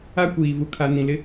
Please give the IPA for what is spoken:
a˦ kʷ iː˨ v u˨ kʰ a˨ n ĩ˨ l ɪ˦

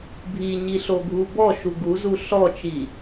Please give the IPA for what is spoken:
bʱ i ɲ i ɬ o ɡʱ u b ɔ ʃ u ɡ u z u ɬ ɔ t͡ʃ i

